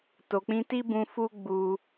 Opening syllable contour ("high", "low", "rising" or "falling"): low